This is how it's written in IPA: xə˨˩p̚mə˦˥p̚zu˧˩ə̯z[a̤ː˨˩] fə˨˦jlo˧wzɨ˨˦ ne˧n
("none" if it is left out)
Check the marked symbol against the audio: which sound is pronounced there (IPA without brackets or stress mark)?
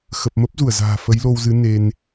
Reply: a̤ː˨˩